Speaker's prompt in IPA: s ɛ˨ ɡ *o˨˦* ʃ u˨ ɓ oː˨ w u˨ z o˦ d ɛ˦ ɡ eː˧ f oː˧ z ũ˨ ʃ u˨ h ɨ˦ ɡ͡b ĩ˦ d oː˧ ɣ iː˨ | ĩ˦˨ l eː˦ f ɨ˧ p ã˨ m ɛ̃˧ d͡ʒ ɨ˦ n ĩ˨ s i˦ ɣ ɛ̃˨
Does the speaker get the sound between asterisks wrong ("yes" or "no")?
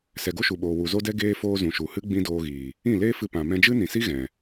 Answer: yes